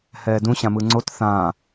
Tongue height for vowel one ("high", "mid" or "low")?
mid